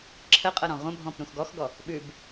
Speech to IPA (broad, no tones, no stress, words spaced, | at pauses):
ǁʰə qʼɤɾɔ̃ʁʷə̃bʱɔ̃p ɾũxɡɔxɡɔ | ɓʉb